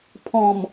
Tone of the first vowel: low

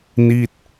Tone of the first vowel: falling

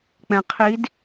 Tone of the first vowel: low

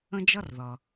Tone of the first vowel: high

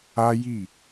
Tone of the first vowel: high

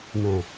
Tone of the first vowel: low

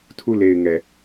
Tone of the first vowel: falling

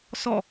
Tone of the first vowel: falling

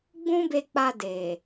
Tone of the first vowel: high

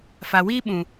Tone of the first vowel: low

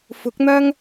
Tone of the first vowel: rising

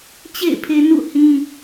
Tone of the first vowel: falling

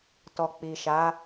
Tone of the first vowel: low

